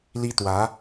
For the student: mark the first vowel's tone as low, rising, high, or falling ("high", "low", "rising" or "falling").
high